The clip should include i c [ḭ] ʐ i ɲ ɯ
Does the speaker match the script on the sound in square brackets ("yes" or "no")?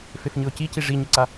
no